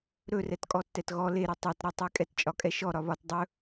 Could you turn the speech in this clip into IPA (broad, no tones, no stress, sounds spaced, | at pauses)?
ɾ ɵ r ɛ t kʼ ɔ tː ɛ t ɣ ɔ l e ɾ e tˤ ɛ t ɾ e tˤ e kʼ ɛ t t͡ʃʼ ɒ kʼ ɛ ʃ ɔ ɾ ɒ β ɒ t dˤ ɵ